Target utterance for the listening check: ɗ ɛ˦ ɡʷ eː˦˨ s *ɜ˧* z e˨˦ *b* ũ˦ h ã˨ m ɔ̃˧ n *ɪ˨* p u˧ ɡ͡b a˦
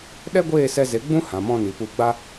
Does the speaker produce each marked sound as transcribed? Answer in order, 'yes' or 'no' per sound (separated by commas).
no, no, no